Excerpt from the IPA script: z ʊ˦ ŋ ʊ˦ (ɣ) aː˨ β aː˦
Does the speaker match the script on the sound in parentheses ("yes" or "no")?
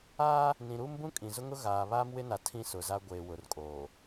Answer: yes